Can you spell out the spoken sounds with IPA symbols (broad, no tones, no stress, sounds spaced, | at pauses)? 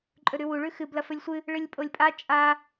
ǃʼ ɵ ɾ ʉ w u ɭ ʉ x ɨ b l ɐ f ɵ lʲ sʷ ɨ | ɭ ɨ lʲ pʼ o lʲ pʼ a t͡ʃʼ a